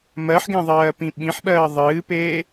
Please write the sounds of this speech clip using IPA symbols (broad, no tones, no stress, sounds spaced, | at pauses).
m ɜ ħ ɡ ẽ ðˤ ɜː p ĩ ɓ ĩ ħ ɓ ɜː ðˤ ɨː p eː